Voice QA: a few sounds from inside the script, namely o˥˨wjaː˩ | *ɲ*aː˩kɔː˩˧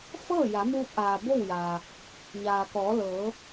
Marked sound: correct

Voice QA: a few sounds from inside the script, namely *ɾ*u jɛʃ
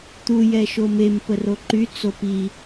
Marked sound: incorrect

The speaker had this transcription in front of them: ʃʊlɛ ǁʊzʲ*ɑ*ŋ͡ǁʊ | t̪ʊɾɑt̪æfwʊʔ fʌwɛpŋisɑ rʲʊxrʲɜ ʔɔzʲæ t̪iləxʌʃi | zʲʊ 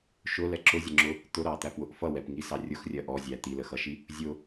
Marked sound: incorrect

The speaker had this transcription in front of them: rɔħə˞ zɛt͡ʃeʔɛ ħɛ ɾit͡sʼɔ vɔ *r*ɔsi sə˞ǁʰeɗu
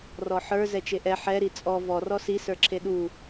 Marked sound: correct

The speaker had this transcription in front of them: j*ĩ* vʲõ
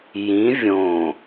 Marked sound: correct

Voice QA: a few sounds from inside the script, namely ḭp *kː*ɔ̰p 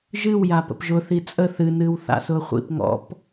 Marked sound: incorrect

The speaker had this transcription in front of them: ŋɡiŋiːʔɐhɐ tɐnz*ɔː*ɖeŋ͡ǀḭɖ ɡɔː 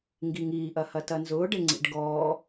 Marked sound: incorrect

